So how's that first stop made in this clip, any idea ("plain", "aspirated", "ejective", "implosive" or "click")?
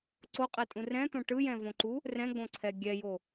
click